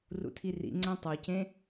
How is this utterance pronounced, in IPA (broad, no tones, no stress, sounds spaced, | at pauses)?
r ṵ tʰ i r ḭ ŋ͡ǀ æ̃ tˤ o c ẽ